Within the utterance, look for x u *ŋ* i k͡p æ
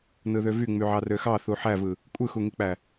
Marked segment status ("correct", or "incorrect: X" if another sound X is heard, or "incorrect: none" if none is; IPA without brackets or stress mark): correct